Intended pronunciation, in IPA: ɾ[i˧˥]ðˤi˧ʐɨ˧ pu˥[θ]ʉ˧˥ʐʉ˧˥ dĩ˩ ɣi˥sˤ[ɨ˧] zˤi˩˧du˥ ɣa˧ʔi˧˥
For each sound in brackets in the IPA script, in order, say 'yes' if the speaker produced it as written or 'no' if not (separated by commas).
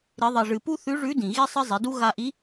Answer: yes, yes, no